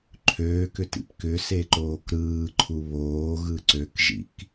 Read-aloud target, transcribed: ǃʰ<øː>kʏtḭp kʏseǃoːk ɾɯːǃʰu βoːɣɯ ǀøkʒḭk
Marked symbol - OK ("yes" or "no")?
yes